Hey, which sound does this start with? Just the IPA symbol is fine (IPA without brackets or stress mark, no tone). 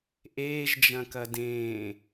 ʔ